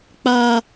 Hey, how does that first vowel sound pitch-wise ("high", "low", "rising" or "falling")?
high